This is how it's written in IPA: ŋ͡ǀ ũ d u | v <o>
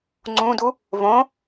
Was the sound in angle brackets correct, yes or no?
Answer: no